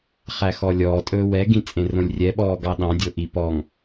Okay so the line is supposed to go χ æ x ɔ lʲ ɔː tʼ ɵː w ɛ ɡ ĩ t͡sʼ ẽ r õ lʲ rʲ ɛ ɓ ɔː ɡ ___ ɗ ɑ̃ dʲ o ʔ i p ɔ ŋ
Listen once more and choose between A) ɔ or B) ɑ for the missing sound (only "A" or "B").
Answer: B